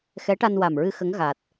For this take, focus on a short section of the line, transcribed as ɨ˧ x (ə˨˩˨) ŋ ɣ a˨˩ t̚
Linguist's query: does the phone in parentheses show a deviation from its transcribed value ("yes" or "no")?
yes